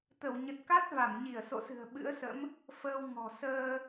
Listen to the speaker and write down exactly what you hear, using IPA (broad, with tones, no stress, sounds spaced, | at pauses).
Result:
t̪ ə˧˩ w ɲ ə˨˩ t̚ k a˦˥ t̚ v a˧˩ m ɲ i˧˩ ə̯ s o̰˧˨ s ɨ̤˨˩ ə̯ ɓ ɨ̰˧˥ ə̯ s ə̰˧˥ m | f əː˧ w ŋ ɔ̤˨˩ s əː˧